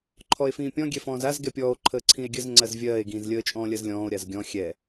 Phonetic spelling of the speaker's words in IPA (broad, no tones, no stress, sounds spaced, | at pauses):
ǃʰ ɔ e̯ f ĩː pʲ ɔ̃ ɡʲ ɛ f ɔ̃ː z a z ɡ ɛ pʲ ɔː o̯ ǃʰ əː ǀʰ ĩ e̯ ɡʲ ə z ŋ͡ǀ ɜ z vʲ ɜː e̯ ɡ ĩː z lʲ əː t͡ʃʼ ɔ̃ː lʲ ɜ z lʲ ɔ̃ː o̯ ɾʲ a z ɡʲ ɔ̃ xʲ ɛ